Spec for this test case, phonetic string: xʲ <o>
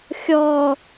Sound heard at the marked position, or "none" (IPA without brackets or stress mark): ɔ